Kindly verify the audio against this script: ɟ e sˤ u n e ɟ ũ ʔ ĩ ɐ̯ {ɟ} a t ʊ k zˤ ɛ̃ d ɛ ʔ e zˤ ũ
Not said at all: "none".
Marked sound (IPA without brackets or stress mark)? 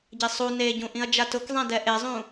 d͡ʒ